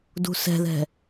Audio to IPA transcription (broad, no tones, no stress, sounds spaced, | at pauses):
d ṳ s ɛ̤ ð ɛ̤